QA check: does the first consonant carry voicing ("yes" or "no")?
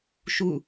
no